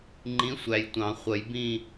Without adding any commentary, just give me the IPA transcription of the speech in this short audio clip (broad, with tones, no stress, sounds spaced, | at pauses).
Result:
ŋ͡ǃ ĩ˨˥ sʷ æ˨ j tʷ ɑ̃˨˩˦ χʷ ə˨˩˦ j b ĩ˥˧